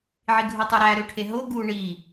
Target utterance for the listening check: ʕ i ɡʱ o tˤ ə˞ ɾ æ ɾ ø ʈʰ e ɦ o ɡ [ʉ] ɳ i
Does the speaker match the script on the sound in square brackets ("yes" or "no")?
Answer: no